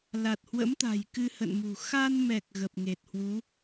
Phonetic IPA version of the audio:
l a˨˩ t̚ h w ə̰˧˥ m t̪ a̤˨˩ j k ɨ˧ h ə̰˧˨ n m ṳ˨˩ x a˧ n m ɛ˨˩ k̚ ɣ ə˨˩ p̚ ŋ e˨˩ t̚ h w u˨˦

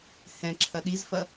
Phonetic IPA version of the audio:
h ɛ̃ ǁʰ ɐ ɗ i z f ɐ

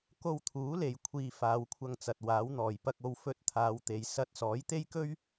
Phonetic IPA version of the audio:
k o˧ w t̪ʰ uː˨˥ l e˨ j kʷʰ iː˧ f aː˨˧ w kʷʰ ɐ˧ ŋ t͡s ɐ˨ t̚ w aː˨˥ w n̪ ɔː˨˩ j p ɐ˧ k̚ o˧ w f ɵ˧ t̚ t̪ʰ aː˨˧ w t̪ e˨ j s ɐ˧ t̚ s ɔː˨˥ j t̪ e˥ j k ɵ˥ ɥ

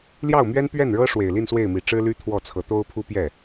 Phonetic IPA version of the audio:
l j ɑ˥˩ ʊ̯ m ɥ ɛ˥ n p ɥ ɛ˥˩ n ɻ ɤ˥ ʂ w e˨˩ ɪ̯ l i˥˧ n s w e˥˩ ɪ̯ m i˨˩ ʈ͡ʂ ɻ̩˥ l y˥ t̪ʰ w ɔ˥˩ t͡sʰ ɤ˧˥ t̪ o˥ ʊ̯ pʰ u˥ p j ɛ˥˩

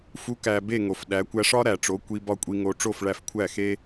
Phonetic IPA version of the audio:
f u˩˥ k æ˩ b e˥˩ ŋ o˩ f ɗ æ˩˥ kʷ æ˧ ʂ ɒ˥ ɾ æ˩ ʈ͡ʂ o˩˥ kʷ i˧ b ɒ˥˩ kʷʼ i˧ ŋ o˧ ʈ͡ʂ o˥˩ f ɭ æ˧ f kʷʰ æ˥˩ x e˥

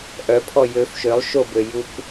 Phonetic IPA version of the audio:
ʔ œ pʰ ɔ j ø f ʃ ø lˠ ʃ o b ø j u k

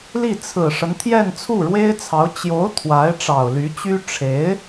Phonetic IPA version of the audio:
l i˥˩ t͡sʰ ɹ̩˨˩ ʂ ə˦ n t̪ʰ j ɛ˥˧ n t͡sʰ u˥˩ ɻ w e˥ ɪ̯ t͡sʰ ɑ˧˥ ʊ̯ t͡ɕ j o˧˥ ʊ̯ t̪ʰ w a˧˥ ɪ̯ ʈ͡ʂ ɑ˨˩ ʊ̯ l y˧˥ t͡ɕ y˥ ʈ͡ʂʰ e˧˥ ɪ̯

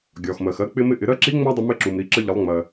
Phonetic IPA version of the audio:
ɡʲ ɒ˩ x m ɜ˩ x ɜ˧ k͡p ɪ˧ m ɪ˧ ʔ ɪ˩˧ ɾ ɜ˧˥ ǁ i˧˥ ŋ͡m æ˥ dˤ ɪ˧ m ɪ˧˥ ǁ u˩ m ɾ i˩˧ ǁ ə˧ ʎ ə˩˧ lˠ ŋ͡m ɜ˩

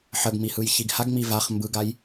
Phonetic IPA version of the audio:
ħ ə ɡ m i h ɯ j ç i ɡ h a ɡ ŋ͡m i v a χ m b ɯ ɡ a j

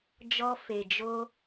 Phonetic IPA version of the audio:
d͡ʒ ɔ˧ f e˨ d͡ʒ o˧

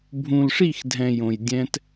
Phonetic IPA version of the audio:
bʱ ũ˨ l ʂ i˦˨ x dʱ ɛ̃˨ j õ˨ j dʲ ɛ̃˦ t

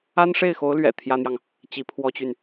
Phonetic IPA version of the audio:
a˥ n ʂ e˥˩ ɪ̯ x o˧˥ ʊ̯ l ɥ ɛ̰˨˩ t̪ʰ j ä˥ n̪ j ɑ˨ ŋ | t͡ɕ i˧˥ pʰ w ɔ˥ t͡ɕ y˨ n

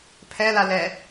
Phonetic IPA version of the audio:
pʰ ɛ l a l ɛ

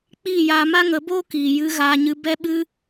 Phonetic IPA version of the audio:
k͡p iː˦˨ j aː˧ m a˦ ŋ ə˨˦ b oː˦ k iː˨ j ɨ˧ ɣ aː˧ ɲ ɨ˧ b ɛ˦ ɓ ɨ˦

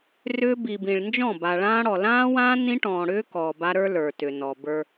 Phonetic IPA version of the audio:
r ʏː˦ b i˨ b ĩ˨ ɭ n d͡ʒ ɔ̃˦˨ b a˨ ɭ ãː˦ ɽ ɔ˨ l ãː˦ w ãː˦ n ĩ˦ ʈ ɔ̃ː˨ ɽ ʏː˦ k ɔː˨ b a˦ ɾ ə˞˦ l ə˞˨ t ʏ˨ n ɔ˨ b ə˞˦

